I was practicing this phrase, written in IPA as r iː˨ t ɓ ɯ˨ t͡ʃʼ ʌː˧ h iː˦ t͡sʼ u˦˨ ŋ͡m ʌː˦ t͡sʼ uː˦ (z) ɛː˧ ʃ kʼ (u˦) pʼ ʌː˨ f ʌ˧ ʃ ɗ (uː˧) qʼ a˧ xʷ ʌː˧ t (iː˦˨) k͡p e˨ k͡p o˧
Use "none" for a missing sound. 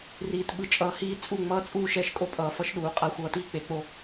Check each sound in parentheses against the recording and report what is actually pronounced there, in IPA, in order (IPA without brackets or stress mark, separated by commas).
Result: ʃ, o˦, uː˨, iː˦